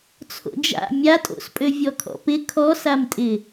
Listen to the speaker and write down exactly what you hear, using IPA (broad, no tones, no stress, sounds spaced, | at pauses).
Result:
t͡sʰ o̰ d͡ʒ a̰ mʲ a tʼ o̰ s pʼ ø vʲ ɔ kʰ ɔ̰ p ɪ kʰ ɔ s a m tʼ ɪ